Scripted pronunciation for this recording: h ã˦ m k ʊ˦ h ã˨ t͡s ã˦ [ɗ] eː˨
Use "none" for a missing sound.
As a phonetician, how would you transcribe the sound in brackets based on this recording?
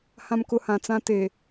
t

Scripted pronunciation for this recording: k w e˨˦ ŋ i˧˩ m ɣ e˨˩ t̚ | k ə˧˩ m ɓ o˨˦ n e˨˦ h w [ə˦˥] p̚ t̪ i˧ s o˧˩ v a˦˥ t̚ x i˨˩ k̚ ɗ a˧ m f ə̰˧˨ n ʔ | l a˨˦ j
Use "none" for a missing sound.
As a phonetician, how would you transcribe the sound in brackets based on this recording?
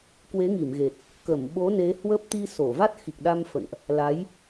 ə˦˥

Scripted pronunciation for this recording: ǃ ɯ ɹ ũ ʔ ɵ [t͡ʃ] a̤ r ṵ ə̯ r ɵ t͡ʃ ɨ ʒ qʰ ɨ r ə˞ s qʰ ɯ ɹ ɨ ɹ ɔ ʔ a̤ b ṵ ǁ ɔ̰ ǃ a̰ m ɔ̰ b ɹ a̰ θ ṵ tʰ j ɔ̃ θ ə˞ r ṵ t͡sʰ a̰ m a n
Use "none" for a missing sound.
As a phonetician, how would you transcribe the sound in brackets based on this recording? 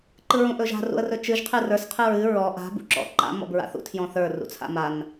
ʒ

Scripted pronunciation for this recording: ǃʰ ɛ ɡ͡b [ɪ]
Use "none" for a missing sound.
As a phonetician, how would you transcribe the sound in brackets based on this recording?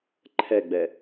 ɛ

